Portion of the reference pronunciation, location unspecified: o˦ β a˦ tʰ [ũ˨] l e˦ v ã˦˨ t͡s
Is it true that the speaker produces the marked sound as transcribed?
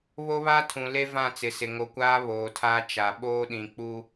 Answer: yes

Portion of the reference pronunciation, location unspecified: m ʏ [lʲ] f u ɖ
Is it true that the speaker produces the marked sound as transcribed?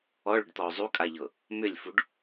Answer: yes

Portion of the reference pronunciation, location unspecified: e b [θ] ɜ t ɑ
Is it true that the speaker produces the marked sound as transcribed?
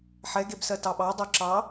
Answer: no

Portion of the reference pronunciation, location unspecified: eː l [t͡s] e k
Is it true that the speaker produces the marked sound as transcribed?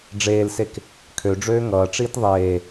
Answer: no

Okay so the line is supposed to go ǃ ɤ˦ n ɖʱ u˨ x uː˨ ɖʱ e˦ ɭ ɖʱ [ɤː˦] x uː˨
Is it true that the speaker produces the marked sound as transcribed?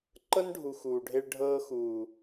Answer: yes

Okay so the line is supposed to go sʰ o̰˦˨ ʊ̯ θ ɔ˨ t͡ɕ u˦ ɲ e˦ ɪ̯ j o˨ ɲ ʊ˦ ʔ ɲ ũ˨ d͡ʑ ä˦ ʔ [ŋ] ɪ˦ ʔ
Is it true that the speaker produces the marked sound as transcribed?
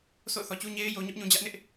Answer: no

